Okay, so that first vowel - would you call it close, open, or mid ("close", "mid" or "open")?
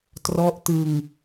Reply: mid